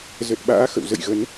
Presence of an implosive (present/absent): present